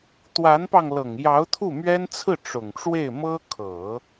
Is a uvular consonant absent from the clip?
yes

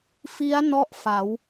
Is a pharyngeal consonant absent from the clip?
yes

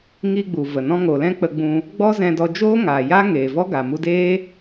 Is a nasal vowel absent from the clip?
no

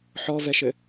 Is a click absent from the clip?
yes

